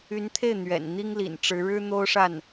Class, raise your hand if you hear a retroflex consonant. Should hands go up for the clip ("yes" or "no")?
yes